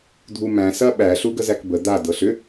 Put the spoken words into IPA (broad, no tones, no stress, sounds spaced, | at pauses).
dʱ u m æ̃ s ɐ ɓ æ ɬ u ɡ ə z æ k b ə d̪ a d ɤ ɬ ʏ